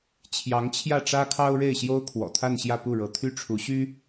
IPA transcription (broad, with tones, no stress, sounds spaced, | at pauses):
t͡ɕʰ j ɑ˧˥ ŋ t͡ɕʰ j ä˥˩ ʈ͡ʂ ä˥ kʰ ɑ˥ ʊ̯ ɻ e˥˩ ɪ̯ ɕ j o˥ ʊ̯ kʰ w ɔ̰˨˩ t̪ʰ a˥˧ n ɕ j ä˥˧ p u˥˩ ɻ ɤ˧˥ t̪ʰ y˥ ʈ͡ʂʰ u˧˥ ɕ y˥